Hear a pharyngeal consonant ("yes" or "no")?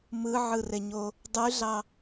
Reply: yes